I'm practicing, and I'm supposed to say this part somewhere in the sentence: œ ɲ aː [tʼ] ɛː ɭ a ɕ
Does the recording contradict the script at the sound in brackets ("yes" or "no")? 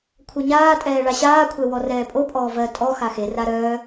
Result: no